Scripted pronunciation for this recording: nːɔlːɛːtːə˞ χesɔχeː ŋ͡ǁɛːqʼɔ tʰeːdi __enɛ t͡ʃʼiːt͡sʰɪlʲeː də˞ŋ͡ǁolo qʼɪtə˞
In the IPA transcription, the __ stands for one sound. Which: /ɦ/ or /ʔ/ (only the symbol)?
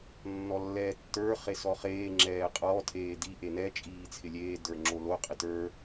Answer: ʔ